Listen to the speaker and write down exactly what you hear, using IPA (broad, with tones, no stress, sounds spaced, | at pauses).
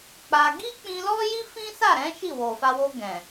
k͡p a˧ ɡ i˦ k͡p ĩ˧ l ɔ˦ j i˦ f ĩ˦ s a˦˨ ɾ ɛ̃˨˦ ʃ i˦˨ w o˨ f a˧ w o˧ ɡ ɛ̃˨